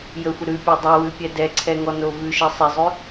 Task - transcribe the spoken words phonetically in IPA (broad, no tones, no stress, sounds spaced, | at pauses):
j ə xʷ ə ɾ ʉ pʲ ø dˤ ɛ w ʉ pʲ ɛ d ɛ ǀʰ ɛ ŋ ɔ n o v ʉ ʃ e sˤ e zˤ ʉ